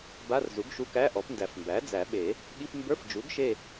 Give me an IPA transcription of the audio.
b a˧˥˧ r z u˩˥ ɡ ʃ u˧˥˧ k æ˧˥˧ ʔ ɔ˩˥ p n d æ˨˩˦ f m b æ˩˥ d͡z æ˨˩˦ ɓ e˨˩˦ | ɠ i˧˥˧ p m b ə˞˧˥˧ f d͡ʒ u˩˥ ɡ ʃ e˦˨

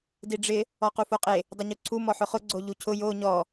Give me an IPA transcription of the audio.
d i ɖ͡ʐ ɪ | ɔ q u f o qʼ e | dˤ ʊ ɲ u ǀʰ u m ɔ ħ ʊ χ ʊ ɡ͡ǀ o ʎ u cʰ ʊ j o ɲ ɔ

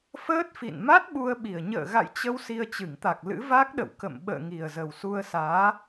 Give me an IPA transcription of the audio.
f əː˦˥ t̚ f ḭ˧˨ n m a˦˥ t̚ ɓ u˧ ə̯ ɓ i˨˩ ə̯ ɲ ə̰ː˧˨ ɣ a̰˧˨ j t͡ɕ ə˧ w s i˧ ə̯ t͡ɕ ɨ˧˩ ŋ t̪ a˨˩ k̚ l ɨ̰˧˥ v a˦˥ k̚ ɗ ə̰˧˨ w k ə̰˧˨ m ɓ ə̰ː˧˨ ŋ i˨˩ ə̯ z ə˨˩ w s u˧ ə̯ s aː˨˦

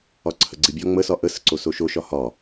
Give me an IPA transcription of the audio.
ɒ ǀʰ ə ɡ͡ǀ i bʲ ɒ ŋ͡m ə s ɒ ʔ ə s ə ǀ o s o ʃ o ʃ ɒ h ɒ

